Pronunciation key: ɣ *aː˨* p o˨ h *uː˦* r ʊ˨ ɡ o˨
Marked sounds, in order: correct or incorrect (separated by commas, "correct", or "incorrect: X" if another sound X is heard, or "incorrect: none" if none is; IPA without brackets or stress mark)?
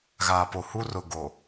correct, incorrect: u˦